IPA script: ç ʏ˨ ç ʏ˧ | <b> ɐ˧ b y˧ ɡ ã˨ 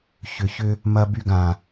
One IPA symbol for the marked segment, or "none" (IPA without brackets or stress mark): m